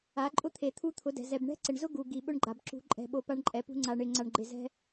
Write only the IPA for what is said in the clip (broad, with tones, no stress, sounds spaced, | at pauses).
a˨˦ ǃʼ ʊ˦ t̪ʰ e˨ t̪ʰ u˦ t̪ʰ ʊ˨˦ d ɛ̤˨ z ɛ˨ b ɳ ɛ̤˦ ǀ ɪ˨ ɳ z ʊ˦ ɡ u˨ ɡ i˨ ɓ ʊ˦ ɳ ɡ͡ǃ a˨ b ǁ ṳ˧ ǃʼ ɛ̤˨ ɓ o˨ p a˦ ɳ ǃʼ ɛ˨ p ṳ˦ ŋ͡ǀ a˨ ɳ ɪ˨ ŋ͡ǀ a˨ ɳ ɡ͡ǃ ɪ˨ z ɛ̤˦